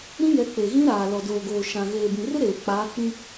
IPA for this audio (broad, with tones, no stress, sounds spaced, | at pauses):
ɾ ĩ˦ j ɛ˨˦ k͡p e˨ ɣ ĩ˦ ɾ aː˨ l ɔ˨ d oː˨ ɡ oː˨ ʃ ã˨ ɣ eː˨ b ĩ˨ r ɪ˦ ɾ eː˨ k͡p aː˨˦ k͡p ĩ˦